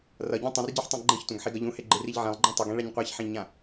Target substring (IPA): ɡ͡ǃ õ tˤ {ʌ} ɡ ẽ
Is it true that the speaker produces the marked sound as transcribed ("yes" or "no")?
yes